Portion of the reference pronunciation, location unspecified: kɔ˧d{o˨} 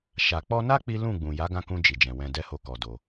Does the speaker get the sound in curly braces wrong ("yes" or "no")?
yes